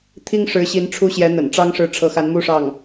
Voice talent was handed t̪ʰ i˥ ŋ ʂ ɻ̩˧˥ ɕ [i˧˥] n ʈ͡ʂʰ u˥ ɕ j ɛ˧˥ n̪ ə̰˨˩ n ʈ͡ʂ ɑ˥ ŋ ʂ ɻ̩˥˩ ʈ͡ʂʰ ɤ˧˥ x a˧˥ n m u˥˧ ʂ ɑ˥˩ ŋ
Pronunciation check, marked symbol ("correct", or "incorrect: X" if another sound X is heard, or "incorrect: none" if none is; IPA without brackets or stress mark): correct